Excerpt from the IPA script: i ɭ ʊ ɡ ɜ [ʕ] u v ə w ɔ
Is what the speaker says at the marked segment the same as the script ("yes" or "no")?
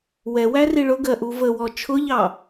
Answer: no